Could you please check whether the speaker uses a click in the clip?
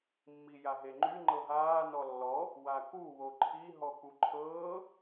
yes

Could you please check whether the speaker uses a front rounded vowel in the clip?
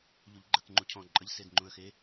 no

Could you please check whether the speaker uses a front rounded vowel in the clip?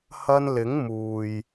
no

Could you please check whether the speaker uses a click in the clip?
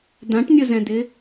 no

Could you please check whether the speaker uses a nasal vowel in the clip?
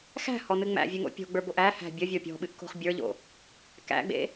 no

